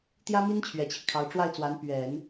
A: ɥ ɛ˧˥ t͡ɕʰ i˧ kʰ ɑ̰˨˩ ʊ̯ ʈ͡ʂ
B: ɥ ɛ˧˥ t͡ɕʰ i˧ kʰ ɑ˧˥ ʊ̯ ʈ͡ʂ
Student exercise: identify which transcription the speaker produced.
B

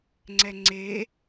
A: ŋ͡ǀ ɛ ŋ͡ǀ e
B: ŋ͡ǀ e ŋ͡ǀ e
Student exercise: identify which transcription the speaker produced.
A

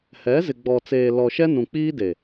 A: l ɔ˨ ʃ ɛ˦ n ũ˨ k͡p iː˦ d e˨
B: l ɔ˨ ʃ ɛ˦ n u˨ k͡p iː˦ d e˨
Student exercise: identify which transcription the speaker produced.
A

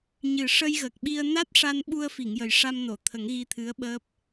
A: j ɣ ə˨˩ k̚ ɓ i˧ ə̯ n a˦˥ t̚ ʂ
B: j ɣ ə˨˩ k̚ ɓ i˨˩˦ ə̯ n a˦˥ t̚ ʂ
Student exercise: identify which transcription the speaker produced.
A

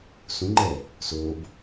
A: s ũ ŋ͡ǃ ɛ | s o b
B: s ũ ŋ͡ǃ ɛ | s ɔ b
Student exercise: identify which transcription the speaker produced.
A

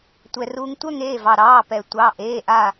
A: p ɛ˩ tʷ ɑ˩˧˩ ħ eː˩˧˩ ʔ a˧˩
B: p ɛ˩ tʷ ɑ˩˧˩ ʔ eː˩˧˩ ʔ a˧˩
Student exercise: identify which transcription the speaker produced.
B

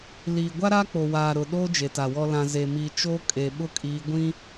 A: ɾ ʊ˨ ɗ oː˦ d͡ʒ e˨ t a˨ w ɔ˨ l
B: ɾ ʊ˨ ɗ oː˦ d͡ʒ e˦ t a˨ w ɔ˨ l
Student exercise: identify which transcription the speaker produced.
A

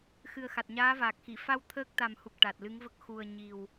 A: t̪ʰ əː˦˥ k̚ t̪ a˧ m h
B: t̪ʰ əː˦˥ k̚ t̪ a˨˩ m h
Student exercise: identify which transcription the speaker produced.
B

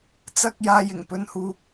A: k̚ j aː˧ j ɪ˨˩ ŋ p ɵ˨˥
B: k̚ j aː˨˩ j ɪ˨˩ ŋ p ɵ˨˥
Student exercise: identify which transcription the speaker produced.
A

